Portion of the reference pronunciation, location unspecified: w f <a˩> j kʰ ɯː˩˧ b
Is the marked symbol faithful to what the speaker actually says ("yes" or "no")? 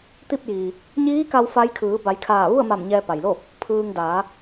no